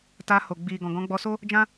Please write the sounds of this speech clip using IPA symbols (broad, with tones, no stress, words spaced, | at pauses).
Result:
ta˧ho˨ ɡ͡bi˨ ɡɔ̃˨ɡɔ̃˨˦ɡ͡bɔ˧so˦ | d͡ʒã˦